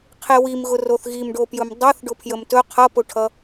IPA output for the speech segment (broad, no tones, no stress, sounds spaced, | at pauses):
qʰ e w i m ɣ ʊ r o θ ɣ i m ɖ o p j ɵ m dˤ ʌ θ ɖ ʊ pʰ j ə m t ɵ qʰ ʌ p ʊ ʈʰ ʌ